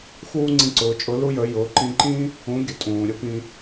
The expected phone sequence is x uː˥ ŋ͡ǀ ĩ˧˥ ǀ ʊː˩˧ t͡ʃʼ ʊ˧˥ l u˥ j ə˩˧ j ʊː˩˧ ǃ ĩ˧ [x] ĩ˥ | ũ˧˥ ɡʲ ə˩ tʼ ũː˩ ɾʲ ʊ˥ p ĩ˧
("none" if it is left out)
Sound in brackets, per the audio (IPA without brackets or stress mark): ǃ